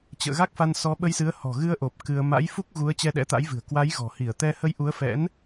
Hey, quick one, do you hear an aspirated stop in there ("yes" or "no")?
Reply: no